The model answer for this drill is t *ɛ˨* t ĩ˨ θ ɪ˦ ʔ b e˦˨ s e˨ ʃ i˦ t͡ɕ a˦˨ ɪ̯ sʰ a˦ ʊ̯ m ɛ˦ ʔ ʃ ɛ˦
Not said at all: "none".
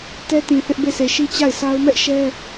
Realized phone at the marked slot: ɛ˦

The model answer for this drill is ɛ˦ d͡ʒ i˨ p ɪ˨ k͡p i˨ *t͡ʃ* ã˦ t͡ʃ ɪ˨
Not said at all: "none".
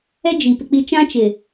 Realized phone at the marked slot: t͡ʃ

